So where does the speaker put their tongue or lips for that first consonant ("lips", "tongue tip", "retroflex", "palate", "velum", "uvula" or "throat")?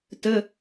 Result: tongue tip